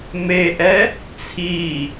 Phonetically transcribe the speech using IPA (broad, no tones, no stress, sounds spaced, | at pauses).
m e ʔ ɛ | t͡sʰ i